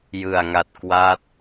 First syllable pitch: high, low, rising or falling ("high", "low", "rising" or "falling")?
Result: low